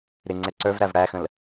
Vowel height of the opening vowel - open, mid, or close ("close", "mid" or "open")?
close